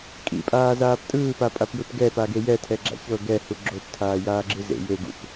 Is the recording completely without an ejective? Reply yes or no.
no